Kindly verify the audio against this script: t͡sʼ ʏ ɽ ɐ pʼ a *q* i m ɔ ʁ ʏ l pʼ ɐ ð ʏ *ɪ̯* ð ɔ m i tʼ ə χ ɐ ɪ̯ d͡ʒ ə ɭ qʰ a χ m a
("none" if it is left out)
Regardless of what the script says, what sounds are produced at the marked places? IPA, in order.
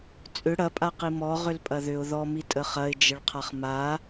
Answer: q, ʊ̯

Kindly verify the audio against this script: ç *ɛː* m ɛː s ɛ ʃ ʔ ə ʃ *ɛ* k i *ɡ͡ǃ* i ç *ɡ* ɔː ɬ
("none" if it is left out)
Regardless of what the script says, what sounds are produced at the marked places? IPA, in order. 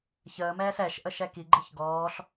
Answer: əː, ɛ, ɡ͡ǃ, ɡ

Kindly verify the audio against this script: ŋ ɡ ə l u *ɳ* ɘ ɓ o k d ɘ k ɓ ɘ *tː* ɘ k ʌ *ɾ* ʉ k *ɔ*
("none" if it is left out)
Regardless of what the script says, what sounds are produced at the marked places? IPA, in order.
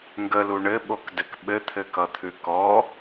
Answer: ɳ, t̪ʰ, t̪ʰ, ɔ

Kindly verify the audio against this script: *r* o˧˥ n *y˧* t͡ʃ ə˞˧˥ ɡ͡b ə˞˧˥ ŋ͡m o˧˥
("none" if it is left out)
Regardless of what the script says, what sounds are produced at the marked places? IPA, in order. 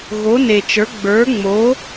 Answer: ɣ, e˧

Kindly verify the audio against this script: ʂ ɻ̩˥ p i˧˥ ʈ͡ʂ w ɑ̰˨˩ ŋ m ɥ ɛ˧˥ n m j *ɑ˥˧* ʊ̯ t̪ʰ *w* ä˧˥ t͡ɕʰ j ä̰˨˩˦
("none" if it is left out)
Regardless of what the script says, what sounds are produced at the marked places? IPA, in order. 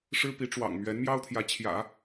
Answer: ɑ˥, j

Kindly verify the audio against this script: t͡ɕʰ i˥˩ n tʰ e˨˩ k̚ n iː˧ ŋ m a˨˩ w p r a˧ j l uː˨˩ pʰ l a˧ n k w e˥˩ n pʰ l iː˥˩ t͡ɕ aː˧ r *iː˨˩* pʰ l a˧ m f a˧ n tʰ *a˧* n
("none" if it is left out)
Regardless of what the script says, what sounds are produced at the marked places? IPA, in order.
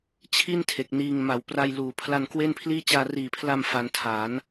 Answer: iː˨˩, a˩˦

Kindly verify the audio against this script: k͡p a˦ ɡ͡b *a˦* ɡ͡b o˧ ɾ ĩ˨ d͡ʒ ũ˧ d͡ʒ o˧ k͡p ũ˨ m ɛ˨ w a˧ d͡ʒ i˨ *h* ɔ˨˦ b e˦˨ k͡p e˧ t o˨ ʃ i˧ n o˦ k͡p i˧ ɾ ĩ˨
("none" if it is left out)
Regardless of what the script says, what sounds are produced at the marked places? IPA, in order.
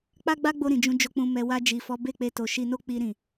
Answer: a˦, f

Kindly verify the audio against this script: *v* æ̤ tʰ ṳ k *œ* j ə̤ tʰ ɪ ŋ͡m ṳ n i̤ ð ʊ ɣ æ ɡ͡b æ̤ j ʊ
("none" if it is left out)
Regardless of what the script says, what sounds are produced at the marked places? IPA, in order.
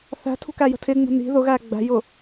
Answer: θ, æ

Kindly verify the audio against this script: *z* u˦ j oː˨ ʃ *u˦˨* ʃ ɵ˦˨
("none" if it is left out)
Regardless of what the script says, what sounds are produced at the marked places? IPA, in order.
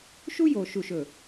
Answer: ʃ, u˦˨

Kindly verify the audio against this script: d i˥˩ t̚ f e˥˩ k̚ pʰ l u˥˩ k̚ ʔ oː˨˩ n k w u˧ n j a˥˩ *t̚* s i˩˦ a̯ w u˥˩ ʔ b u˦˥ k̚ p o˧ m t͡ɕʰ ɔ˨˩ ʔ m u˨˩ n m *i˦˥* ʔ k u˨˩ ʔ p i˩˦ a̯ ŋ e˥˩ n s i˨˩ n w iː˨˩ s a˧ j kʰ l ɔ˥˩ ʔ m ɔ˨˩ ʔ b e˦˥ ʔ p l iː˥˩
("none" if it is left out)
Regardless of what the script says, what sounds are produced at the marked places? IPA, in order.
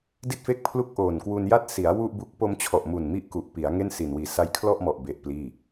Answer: t̚, i˦˥

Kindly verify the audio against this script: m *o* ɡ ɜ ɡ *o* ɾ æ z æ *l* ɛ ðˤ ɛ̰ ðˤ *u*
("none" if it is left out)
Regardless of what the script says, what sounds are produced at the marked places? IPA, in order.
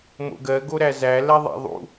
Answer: o̰, o, l, ṵ

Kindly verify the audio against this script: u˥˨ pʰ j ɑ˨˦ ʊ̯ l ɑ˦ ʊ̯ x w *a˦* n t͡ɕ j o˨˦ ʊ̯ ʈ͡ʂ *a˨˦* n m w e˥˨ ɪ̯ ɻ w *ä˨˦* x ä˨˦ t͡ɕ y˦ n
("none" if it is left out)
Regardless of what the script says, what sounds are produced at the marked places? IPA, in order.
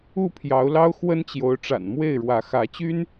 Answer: ə˦, a̰˨˩, ä˨˦

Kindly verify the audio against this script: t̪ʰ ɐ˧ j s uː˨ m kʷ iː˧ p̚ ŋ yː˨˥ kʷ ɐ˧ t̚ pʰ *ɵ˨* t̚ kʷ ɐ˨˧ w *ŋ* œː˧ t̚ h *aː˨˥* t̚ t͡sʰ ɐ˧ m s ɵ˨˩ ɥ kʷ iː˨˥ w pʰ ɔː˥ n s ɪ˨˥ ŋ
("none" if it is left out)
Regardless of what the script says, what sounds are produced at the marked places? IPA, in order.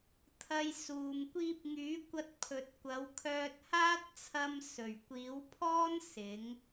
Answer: ɵ˨, kʰ, aː˥

